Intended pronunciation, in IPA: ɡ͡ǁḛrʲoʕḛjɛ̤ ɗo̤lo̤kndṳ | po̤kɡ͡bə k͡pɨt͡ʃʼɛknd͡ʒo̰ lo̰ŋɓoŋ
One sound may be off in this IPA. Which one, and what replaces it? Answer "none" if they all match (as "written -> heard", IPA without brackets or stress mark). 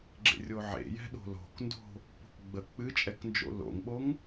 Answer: ṳ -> o̤